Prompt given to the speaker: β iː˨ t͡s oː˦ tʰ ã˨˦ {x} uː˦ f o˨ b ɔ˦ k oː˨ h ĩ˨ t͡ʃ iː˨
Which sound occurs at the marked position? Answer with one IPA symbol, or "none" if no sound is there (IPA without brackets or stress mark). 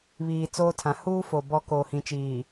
h